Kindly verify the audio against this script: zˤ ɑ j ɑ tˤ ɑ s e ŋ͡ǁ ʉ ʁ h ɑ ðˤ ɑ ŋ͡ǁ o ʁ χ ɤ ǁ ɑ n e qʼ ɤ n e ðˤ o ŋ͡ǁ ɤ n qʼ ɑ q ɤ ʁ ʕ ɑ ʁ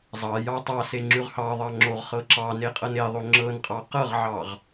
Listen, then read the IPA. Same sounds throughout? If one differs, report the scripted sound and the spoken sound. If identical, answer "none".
none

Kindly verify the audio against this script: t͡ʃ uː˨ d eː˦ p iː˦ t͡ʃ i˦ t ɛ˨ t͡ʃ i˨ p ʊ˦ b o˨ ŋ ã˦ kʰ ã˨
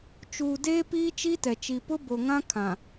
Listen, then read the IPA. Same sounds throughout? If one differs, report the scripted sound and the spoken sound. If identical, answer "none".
none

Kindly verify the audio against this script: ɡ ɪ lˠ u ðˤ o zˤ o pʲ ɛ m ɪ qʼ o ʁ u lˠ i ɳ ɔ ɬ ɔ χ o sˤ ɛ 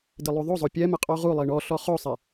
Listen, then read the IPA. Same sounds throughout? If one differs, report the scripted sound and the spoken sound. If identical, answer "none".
ɡ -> d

